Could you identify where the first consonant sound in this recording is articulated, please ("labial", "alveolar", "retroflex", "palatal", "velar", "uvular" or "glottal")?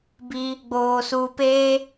labial